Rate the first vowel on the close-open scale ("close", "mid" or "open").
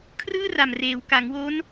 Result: close